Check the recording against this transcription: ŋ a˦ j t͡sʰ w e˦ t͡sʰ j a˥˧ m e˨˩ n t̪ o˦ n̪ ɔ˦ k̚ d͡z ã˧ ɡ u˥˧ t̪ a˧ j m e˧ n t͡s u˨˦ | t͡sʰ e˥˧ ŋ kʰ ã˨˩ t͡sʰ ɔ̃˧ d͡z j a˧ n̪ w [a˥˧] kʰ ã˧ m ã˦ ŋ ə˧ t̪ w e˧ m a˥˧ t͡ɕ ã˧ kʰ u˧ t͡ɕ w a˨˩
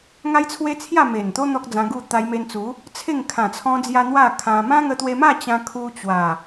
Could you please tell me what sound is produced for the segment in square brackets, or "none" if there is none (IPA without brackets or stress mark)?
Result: a˥˧